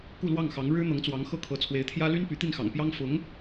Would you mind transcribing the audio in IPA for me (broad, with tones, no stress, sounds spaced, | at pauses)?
k u˥˧ l w ɑ˥˩ ŋ x ɑ˧˥ ŋ ɻ ɻ̩˥ n̪ ɤ˧˥ ŋ t͡s w ɑ˧˥ ŋ x ɤ˥˩ kʰ ɤ˧˥ t͡sʰ w e˧˥ ɪ̯ t̪ʰ j ä˥ l y˥ n p y˧˥ t̪ i˥˩ n x ɑ̰˨˩ ŋ p j ɑ˥ ŋ f ʊ˧˥ ŋ